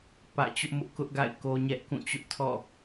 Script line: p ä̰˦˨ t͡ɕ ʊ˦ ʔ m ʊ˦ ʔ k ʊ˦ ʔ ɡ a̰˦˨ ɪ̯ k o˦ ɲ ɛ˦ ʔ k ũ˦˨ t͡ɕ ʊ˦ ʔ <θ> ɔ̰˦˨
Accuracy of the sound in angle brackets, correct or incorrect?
incorrect: tʰ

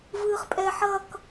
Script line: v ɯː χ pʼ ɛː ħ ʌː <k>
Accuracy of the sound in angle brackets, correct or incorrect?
correct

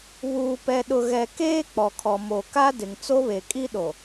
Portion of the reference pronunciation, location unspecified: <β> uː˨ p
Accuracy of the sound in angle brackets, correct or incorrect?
correct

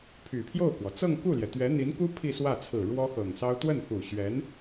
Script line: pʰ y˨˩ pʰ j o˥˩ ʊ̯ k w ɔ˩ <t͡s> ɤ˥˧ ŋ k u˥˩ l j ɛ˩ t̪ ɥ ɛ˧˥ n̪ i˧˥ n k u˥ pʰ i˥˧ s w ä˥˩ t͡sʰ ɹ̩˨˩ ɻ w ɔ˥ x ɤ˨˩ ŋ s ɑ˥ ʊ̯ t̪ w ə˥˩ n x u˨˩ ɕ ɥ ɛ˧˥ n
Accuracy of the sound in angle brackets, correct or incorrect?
correct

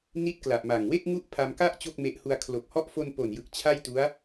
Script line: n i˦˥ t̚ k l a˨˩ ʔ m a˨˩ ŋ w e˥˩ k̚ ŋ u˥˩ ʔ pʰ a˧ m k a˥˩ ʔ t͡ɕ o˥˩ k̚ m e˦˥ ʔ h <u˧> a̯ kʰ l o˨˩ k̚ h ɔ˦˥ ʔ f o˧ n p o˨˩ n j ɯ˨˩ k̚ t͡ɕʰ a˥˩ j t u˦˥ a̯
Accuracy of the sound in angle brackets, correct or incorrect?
correct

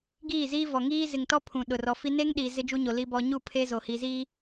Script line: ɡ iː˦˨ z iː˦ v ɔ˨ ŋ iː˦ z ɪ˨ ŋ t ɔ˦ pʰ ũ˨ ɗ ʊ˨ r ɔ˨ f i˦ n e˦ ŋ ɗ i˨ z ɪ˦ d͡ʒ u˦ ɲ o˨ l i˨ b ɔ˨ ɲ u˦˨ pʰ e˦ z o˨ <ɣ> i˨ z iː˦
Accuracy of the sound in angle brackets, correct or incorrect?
incorrect: h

